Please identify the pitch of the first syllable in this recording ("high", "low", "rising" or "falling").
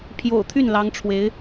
low